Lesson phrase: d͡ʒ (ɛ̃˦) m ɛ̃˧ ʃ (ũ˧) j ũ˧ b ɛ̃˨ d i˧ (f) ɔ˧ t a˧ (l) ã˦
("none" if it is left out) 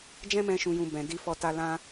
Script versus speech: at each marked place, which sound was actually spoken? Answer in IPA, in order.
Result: ɛ̃˦, ũ˧, f, l

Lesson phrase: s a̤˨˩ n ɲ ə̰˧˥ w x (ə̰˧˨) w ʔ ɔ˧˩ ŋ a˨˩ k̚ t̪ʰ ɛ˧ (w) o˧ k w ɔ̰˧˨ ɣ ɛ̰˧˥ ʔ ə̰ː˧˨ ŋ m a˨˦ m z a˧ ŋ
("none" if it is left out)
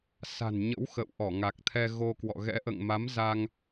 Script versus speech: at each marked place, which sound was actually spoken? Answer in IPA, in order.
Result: ə̰˧˨, ɣ

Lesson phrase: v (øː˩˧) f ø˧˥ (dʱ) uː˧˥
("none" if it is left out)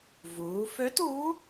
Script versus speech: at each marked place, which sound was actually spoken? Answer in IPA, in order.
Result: uː˩˧, t

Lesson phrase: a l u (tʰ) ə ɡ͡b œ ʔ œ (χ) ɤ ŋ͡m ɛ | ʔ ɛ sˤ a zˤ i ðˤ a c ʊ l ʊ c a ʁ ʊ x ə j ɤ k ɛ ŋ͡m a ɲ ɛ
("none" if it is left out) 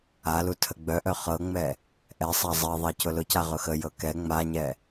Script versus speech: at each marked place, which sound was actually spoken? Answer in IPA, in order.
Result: tʰ, χ

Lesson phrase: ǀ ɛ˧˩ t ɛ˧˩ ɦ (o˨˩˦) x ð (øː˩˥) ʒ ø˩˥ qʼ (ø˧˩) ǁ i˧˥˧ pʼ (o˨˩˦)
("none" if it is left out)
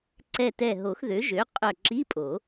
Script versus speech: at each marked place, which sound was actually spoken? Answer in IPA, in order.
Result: o˨˩˦, ø˩˥, œ˧˩, o˨˩˦

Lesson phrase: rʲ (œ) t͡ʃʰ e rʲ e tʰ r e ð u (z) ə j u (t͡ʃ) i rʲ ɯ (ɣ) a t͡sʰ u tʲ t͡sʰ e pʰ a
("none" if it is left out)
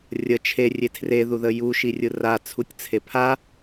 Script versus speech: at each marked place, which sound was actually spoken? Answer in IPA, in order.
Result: ə, ð, ʃ, r

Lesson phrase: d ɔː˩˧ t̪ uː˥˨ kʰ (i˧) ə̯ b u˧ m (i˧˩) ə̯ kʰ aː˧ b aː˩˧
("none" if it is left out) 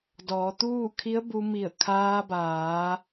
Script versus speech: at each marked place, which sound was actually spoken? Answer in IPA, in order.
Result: i˧˥, i˧˩

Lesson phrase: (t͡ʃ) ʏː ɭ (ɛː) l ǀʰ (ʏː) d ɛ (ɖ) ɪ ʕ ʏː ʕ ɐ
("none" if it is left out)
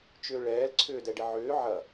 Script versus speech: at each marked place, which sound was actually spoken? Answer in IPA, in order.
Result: t͡ʃ, ɛː, ʏː, ɖ

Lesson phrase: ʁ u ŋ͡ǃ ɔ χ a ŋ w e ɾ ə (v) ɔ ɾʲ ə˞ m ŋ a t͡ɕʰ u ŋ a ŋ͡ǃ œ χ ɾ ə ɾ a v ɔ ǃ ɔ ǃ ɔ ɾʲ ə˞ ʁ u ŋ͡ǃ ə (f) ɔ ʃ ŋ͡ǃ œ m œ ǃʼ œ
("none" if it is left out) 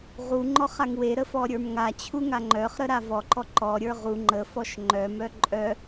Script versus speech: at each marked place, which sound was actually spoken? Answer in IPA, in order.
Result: f, f

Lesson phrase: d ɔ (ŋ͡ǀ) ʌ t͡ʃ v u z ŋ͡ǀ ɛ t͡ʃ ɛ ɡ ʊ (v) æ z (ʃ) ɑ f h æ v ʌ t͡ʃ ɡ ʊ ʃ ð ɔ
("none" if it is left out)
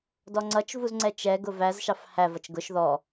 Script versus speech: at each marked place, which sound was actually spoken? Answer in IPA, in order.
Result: ŋ͡ǀ, v, ʃ

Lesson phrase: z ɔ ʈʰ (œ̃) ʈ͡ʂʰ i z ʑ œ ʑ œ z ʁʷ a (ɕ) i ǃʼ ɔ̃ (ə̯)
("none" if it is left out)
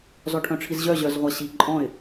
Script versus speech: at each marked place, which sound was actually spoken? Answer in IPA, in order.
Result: œ̃, ɕ, ɪ̯

